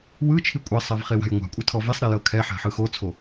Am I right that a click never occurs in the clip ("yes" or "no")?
yes